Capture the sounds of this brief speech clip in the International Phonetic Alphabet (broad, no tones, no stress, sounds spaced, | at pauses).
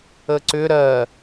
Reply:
ə ǀ ʏ ɾ ɜ